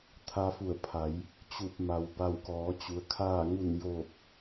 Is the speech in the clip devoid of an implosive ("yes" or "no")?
yes